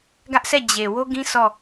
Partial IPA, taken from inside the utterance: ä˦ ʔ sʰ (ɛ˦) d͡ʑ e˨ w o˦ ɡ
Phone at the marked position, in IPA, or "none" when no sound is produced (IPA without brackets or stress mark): ɛ˦˨